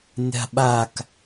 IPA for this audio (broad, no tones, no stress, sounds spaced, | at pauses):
nʲ a̤ ɓ a k